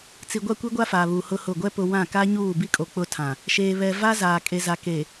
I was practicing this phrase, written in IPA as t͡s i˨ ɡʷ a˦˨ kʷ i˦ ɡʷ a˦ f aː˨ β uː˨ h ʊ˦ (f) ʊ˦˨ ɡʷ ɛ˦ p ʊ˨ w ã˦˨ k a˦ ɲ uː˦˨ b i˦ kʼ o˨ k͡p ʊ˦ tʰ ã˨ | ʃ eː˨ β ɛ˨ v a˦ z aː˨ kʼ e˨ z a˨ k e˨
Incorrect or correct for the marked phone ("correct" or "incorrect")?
incorrect